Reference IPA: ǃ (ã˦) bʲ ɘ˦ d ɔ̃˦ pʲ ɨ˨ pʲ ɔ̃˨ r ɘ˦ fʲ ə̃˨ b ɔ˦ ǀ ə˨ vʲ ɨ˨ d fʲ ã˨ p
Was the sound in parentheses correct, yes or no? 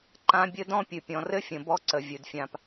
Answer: yes